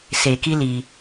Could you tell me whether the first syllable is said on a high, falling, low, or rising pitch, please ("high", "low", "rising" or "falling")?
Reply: low